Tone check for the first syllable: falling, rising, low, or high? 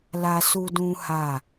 high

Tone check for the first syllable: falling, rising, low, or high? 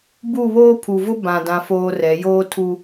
falling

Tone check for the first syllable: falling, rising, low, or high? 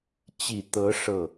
low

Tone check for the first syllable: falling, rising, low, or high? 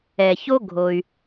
low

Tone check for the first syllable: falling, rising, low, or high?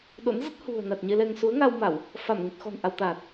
rising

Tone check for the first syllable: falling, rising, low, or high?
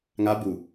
rising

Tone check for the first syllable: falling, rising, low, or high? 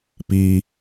high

